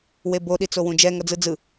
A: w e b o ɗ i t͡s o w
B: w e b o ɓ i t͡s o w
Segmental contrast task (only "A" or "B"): A